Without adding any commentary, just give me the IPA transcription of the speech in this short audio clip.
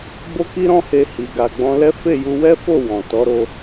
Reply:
b o˦ k i˦ ɾ ɔ̃˦ h e˧ h i˨ ɡ a˨ ɡ͡b ɔ̃˧ l ɛ˦ f e˦˨ j u˧ w ɛ˦ f o˦˨ w ɔ̃˨ t ɔ˨˦ ɾ o˧

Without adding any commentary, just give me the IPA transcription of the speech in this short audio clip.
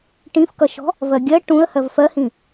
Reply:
ʈ ĩ f k ʌ ʃ ɔ̤ | v ɜ ɡʲ ɜ ʈ ũ ə̯ h ɜ v f ɜ h ĩ

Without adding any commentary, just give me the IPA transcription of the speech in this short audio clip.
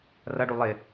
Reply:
r ʌ ɖ u lˠ ɪ

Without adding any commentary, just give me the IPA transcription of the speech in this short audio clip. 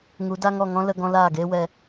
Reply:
ŋ u˨˦ d a˦ ŋ ɔ˦˨ ŋ ɔ̃˦ l ə˧ ɡ ɔ̃˧ l aː˦˨ ɡ eː˦ w ɛ˧

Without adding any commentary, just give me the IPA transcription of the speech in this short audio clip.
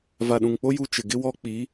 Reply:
v a˨ ɗ ũ˨ ŋ k͡p o˦ j u˦ t͡ʃ ɪ˨ ɡ ɪ˦ w ɔ˦ k͡p i˨˦

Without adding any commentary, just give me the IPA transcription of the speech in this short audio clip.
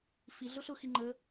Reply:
f i ɮ ʊ ɬ ʊ x i ŋ͡ǃ ə

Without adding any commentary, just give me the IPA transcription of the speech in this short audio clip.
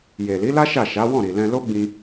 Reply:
j e˨ l i˨˦ l a˦ ʃ a˦˨ ʃ a˨˦ w ɔ̃˦˨ ɾ i˨ l ɛ̃˧ l o˦ ɡ͡b ĩ˧

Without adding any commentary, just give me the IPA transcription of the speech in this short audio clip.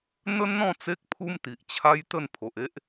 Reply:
n̪ ə˦ n n̪ ɔ̃˥˧ t͡s e˦ k̚ pʰ u˦ m t̪ i˨ ʔ t͡ɕʰ a˦ j t̪ ə˥˧ n pʰ o˨ ʔ e˦ ʔ

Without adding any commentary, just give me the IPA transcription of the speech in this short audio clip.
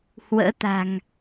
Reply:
h w ə̰ː˧˥ t̪ a̤˨˩ ŋ

